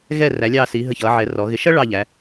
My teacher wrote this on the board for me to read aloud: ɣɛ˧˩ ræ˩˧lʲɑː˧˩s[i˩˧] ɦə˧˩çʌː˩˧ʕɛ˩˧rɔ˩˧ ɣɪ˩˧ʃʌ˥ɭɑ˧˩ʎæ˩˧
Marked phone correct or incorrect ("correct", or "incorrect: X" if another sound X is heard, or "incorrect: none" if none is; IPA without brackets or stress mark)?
correct